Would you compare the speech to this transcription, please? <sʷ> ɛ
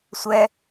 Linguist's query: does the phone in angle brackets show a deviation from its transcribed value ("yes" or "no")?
no